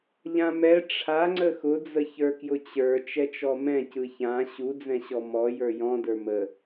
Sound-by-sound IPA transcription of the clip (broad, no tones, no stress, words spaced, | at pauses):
ʎãmɛ ʈ͡ʂʰaŋ͡ǀə xʊd͡zəçə˞kjʊ t͡ɕə˞ t͡ʃɛt͡ʃɔmɛ̃ cɯçã ɕud͡zɛ̃ɕɔ mɔ jə˞jɔ̃ də˞mə